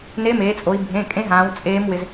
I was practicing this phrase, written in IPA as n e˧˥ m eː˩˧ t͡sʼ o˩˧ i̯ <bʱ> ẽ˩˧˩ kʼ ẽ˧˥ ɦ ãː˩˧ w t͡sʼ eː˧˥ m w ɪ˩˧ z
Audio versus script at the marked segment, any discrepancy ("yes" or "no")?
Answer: no